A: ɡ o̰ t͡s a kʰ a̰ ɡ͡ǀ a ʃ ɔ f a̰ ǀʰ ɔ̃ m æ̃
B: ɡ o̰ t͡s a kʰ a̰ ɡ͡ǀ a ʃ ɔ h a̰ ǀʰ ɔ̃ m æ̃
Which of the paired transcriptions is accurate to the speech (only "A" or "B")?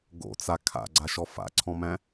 A